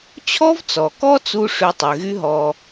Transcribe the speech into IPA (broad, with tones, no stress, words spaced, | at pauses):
t͡ɕʰɔ˥vt͡sɔ˩kɔ˥ t͡su˥ ʂy˧tˤy˩ɣy˥ ɦɔ˧